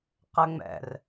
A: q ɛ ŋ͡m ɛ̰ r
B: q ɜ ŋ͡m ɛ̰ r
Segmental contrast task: A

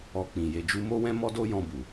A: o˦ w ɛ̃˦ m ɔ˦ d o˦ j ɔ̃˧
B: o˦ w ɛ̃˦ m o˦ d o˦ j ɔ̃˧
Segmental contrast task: A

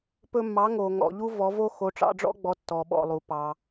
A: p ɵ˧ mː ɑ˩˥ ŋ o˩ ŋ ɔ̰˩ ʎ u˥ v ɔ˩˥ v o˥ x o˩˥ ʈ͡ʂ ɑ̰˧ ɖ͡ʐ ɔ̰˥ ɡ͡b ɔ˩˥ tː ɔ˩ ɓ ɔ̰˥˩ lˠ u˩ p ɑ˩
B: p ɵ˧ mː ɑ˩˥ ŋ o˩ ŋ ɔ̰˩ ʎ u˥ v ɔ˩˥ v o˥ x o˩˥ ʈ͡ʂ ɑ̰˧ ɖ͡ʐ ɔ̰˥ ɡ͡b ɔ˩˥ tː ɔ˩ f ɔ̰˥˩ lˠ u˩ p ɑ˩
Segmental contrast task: A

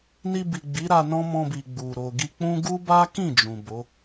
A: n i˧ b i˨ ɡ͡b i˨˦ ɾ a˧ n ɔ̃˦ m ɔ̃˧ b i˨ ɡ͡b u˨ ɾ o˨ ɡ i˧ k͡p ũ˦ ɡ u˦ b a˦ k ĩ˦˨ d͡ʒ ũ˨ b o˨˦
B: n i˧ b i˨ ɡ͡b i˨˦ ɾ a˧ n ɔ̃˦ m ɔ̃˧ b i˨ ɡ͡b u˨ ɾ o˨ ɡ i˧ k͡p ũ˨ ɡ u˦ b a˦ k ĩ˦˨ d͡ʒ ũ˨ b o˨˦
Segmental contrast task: A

